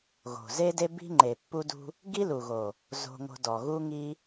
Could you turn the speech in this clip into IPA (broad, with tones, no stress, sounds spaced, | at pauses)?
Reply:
ɣ o̤˨ z e˦ d e˦ b i̤˦ ŋ͡ǃ e˨ pː u˧ d ṳ˧ | ɡ i˦ l u˨ ɣ o˨ | z o̤˧ ŋ o̤˧ d ɔ˨ ɣ u˦ ŋ i˦